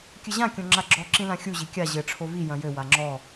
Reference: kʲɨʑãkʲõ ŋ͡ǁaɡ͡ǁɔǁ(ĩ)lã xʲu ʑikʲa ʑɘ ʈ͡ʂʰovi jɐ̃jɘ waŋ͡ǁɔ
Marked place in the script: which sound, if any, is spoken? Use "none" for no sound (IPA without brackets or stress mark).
ĩ